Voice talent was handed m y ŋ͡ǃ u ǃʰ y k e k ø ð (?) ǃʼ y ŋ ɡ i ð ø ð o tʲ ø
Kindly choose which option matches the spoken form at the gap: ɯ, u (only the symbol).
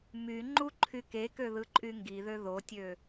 ɯ